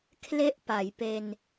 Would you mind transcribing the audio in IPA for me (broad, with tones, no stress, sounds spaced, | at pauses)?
kʰ l e˥˩ ʔ p a˩˦ j p e˧ n